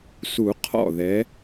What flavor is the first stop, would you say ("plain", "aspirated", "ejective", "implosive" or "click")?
aspirated